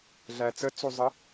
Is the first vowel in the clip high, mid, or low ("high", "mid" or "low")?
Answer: low